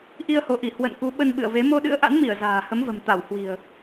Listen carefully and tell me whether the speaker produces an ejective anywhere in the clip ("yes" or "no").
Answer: no